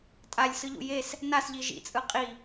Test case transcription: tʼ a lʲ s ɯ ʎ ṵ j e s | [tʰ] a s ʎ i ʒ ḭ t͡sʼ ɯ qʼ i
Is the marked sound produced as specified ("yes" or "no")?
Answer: no